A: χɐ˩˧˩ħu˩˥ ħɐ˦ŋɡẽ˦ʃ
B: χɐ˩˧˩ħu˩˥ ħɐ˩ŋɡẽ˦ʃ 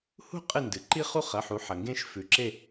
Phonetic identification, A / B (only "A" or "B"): B